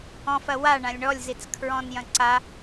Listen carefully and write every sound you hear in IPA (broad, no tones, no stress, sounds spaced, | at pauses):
ɔ̃ f ɐ w a ɳ ã lʲ ɳ ɔ lʲ z i t͡s kʰ ɹ ɔ̃ n j ɐ̃ ǀ a